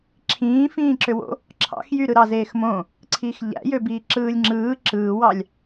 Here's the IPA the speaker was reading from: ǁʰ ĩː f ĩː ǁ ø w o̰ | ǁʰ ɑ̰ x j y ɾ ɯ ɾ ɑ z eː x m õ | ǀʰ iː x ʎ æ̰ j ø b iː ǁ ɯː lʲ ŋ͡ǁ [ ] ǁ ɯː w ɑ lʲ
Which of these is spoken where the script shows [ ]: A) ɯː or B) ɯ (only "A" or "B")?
A